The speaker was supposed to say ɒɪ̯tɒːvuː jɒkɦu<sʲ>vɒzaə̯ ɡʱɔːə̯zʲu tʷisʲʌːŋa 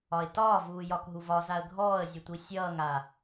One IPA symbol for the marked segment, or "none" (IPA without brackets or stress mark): none